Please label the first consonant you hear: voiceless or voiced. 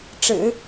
voiceless